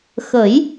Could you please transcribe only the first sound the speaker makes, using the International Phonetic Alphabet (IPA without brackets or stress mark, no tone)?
x